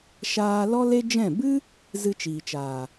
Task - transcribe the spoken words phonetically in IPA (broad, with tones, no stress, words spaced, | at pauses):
ʃaː˦ lɔ˦le˦d͡ʒɛ̃˦˨ bɨ˦ | zɨ˧t͡ʃiː˨t͡ʃaː˨